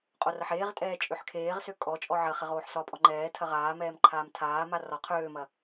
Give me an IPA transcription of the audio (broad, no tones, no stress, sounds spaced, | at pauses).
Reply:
qʼ o r ɐ ħ eː ʁ tʼ ɛː t͡ʃʼ ø ħ kʰ eː ʁ s ø kʼ ɔ t͡ʃʼ ɔ ʕ ɐ χ ɛ ʁ oː ħ s ɒ pʼ ɔ ŋ͡ǃ ɛː tʰ ɐ ʁ aː m ɛː m ǃʰ aː m tʰ aː m a r ɒ qʰ øː m ɐ